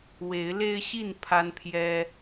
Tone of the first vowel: rising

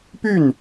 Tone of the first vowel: falling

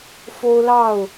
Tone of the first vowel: high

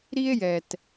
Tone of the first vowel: high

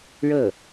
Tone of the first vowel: falling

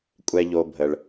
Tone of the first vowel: low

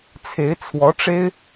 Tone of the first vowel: rising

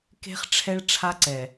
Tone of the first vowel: high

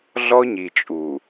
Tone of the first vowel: high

